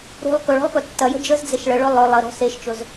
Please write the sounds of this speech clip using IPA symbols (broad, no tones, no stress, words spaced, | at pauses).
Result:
ɾṳlˠ kɵɭɔ̤lˠkɵ tːɐjə̤ d͡ʒəzd͡zeʃ ɭəɭɵ lˠɵ lˠəɾɔ̤ seʃt͡ʃɵz